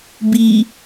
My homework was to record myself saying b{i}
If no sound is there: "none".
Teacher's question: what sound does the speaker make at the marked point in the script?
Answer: i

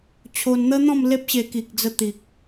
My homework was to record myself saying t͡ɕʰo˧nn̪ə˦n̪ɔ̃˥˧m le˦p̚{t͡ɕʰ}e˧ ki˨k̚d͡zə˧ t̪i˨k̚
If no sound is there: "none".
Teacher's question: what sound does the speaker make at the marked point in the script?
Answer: ɕ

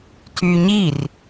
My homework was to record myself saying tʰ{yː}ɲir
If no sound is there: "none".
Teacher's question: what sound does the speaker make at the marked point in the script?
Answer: yː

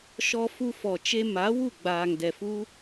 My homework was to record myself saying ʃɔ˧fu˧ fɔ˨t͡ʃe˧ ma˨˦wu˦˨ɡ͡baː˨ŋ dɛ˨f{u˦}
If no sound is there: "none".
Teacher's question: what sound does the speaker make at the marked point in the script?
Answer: u˦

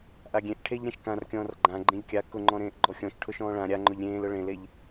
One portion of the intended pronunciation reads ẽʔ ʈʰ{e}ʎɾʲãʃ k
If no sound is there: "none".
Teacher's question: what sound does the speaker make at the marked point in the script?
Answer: e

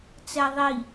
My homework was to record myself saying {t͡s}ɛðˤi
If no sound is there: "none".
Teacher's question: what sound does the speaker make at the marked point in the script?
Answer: t͡s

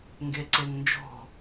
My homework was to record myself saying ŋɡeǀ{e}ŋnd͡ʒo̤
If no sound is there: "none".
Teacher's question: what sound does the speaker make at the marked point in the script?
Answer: e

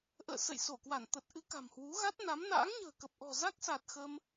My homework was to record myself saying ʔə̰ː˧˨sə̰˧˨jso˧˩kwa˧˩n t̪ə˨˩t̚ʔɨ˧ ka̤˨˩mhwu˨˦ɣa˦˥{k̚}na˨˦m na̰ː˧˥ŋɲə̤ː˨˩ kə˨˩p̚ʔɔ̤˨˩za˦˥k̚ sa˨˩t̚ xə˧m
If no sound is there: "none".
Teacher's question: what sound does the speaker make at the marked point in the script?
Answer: t̚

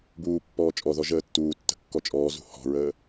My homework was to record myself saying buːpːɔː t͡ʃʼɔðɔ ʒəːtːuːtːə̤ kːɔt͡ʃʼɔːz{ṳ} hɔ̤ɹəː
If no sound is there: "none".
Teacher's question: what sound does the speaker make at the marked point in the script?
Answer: ṳ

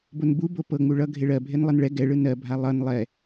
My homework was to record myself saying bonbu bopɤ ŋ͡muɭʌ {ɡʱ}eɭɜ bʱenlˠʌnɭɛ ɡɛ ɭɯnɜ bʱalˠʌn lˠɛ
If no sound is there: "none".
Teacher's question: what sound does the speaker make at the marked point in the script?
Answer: ɡʱ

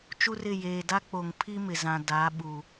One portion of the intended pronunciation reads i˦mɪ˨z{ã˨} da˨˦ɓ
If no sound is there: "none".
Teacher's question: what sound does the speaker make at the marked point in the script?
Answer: ã˨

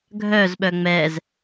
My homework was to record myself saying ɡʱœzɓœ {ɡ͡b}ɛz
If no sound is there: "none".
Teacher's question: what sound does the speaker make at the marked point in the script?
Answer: ŋ͡m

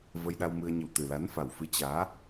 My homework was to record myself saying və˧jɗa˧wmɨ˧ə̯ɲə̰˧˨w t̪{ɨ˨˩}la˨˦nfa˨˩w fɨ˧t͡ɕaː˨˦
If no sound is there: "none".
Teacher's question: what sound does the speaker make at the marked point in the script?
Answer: ɨ˨˩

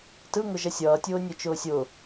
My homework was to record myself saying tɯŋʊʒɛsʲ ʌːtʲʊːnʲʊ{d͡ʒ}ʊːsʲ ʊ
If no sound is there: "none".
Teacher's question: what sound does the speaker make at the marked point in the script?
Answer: t͡ʃ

